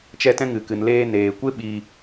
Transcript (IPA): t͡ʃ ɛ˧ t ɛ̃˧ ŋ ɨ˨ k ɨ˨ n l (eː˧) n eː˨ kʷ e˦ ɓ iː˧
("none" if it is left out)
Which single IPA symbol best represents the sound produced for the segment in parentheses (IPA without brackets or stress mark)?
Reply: eː˧